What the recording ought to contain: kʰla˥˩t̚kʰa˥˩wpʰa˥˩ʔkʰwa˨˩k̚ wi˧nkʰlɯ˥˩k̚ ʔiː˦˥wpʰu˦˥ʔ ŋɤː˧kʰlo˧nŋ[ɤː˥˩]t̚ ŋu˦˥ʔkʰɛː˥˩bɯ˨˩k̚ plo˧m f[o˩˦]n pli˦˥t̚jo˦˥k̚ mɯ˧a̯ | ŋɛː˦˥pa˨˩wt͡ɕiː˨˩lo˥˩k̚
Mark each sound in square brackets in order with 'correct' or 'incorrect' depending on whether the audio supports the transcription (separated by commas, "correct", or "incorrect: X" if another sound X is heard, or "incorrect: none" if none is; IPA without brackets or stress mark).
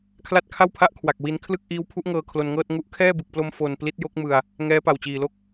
correct, incorrect: o˧